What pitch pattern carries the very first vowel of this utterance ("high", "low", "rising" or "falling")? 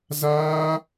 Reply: high